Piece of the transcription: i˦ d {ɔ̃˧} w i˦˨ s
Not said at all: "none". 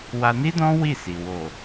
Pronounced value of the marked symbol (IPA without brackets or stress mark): ɔ̃˦